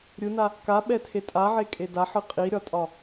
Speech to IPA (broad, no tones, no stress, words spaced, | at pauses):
ɾʲɯna | kaɓɛtʰe tʼaʕekʼe daħɯ qʼiɾʲɒtʼɒ